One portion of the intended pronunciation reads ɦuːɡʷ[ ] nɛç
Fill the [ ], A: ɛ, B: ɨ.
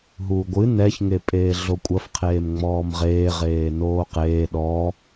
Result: B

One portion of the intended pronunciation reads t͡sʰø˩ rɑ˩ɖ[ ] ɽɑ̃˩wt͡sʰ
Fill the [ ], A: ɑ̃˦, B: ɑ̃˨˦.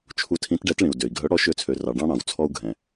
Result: A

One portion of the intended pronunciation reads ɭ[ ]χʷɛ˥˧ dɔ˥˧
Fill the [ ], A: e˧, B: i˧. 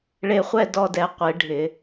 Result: A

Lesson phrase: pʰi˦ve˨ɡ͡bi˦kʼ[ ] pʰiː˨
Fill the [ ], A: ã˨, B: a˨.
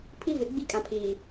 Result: A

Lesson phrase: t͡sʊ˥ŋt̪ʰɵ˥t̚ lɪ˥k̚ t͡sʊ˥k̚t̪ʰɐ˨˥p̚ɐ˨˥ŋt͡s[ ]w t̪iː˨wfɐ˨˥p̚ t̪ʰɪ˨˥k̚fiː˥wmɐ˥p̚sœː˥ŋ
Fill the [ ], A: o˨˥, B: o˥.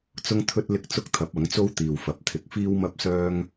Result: B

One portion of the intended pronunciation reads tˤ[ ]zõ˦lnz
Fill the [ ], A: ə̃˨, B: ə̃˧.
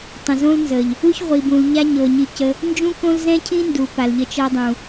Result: A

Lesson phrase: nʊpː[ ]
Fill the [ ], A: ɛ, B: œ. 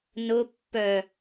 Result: B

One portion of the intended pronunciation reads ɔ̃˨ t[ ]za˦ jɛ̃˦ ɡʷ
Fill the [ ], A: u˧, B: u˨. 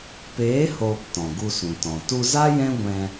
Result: A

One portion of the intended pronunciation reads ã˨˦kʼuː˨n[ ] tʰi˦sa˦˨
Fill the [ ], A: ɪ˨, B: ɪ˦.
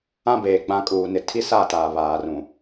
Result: A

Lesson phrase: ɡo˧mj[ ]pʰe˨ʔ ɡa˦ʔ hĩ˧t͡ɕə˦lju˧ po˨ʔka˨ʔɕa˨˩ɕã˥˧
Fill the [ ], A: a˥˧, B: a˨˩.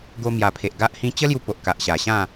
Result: B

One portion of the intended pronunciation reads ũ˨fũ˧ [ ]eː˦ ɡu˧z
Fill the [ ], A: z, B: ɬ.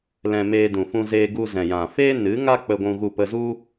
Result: A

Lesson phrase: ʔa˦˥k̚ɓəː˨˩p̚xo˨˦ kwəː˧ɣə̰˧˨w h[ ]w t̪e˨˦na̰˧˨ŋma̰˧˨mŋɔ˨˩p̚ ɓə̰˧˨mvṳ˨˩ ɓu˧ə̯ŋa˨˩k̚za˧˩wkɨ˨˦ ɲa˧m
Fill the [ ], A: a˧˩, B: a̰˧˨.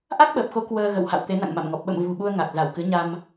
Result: B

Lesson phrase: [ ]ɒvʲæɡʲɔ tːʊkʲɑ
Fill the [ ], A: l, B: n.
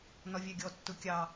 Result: B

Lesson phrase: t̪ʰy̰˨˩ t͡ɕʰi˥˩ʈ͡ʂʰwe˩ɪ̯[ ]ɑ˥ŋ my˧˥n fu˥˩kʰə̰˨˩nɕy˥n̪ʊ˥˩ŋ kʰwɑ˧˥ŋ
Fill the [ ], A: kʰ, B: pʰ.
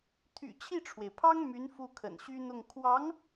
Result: B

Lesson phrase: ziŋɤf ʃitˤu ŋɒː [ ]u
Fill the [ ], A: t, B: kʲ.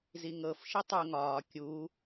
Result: B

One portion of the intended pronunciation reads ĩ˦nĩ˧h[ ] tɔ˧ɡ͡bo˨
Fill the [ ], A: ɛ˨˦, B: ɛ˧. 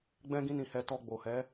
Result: B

